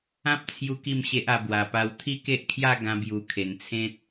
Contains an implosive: no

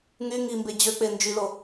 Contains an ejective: no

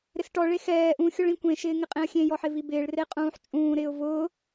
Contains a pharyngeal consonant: yes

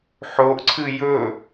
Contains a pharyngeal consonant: yes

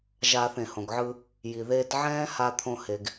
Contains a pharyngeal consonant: yes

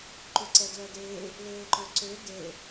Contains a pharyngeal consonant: no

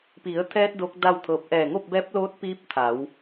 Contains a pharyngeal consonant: no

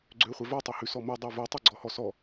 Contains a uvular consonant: yes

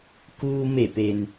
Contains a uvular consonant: no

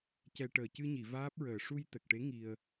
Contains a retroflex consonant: yes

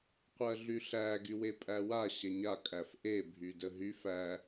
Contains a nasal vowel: no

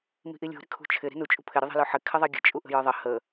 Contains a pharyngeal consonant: yes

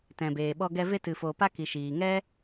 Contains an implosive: yes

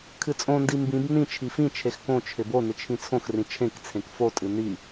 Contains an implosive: no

